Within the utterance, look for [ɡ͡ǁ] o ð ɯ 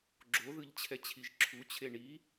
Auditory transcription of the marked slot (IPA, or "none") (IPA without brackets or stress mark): ɡ͡ǁ